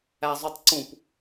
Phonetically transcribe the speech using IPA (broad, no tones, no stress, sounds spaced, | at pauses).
æ zˤ u tˤ ǀ ũ p